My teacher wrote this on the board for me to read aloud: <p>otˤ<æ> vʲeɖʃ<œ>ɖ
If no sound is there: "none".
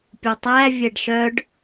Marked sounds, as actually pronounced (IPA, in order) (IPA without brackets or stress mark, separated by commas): pʲ, æ, œ